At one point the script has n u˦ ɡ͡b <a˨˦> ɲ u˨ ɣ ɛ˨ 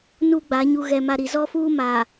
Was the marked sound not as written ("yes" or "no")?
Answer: no